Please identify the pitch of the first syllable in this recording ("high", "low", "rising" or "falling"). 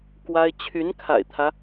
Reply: high